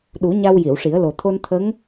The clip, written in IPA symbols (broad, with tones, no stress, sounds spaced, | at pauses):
ɗ u˨˩˦ ɲ a˧ w j i˨˩˨ w ʂ i˨˩˦ ə̯ l o˨˩ t̪ʰ o˧ n t̪ʰ ə˧˥ ŋ